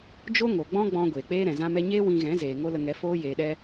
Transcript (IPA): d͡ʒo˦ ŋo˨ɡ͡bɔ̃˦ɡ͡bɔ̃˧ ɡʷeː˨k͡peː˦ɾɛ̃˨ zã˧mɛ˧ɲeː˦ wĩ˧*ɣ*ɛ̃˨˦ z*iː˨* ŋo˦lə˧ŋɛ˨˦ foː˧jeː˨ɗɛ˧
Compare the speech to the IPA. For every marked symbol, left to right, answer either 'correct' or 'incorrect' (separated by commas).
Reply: correct, incorrect